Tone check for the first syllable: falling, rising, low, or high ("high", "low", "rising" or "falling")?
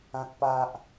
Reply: high